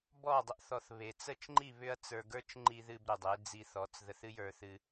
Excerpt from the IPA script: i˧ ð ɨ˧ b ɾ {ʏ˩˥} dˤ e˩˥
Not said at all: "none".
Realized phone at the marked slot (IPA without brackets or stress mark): ʏ˩